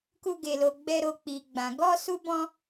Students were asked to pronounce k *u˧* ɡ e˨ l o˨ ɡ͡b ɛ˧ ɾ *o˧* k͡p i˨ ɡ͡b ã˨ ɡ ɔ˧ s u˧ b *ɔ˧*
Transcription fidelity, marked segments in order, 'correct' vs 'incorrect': correct, correct, incorrect: ɔ̃˧

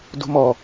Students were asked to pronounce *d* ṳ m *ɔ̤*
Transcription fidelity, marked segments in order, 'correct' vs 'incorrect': correct, incorrect: ɔ

